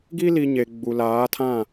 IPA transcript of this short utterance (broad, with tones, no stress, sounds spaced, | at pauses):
ɡ i˦ l i˨ ɲ e˨ ɡ͡b u˨ l aː˨˦ tʰ ã˦˨